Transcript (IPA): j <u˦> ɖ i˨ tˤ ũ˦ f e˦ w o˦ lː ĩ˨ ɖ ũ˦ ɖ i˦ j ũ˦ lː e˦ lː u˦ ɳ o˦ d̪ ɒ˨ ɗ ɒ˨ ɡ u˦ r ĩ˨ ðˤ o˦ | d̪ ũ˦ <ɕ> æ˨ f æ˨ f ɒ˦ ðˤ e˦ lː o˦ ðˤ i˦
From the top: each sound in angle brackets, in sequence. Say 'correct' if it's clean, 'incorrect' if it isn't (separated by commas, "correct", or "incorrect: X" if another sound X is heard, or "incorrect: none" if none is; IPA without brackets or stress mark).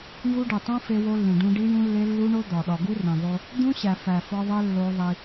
correct, correct